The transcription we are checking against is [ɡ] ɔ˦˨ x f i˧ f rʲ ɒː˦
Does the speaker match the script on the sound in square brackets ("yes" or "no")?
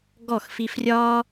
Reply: yes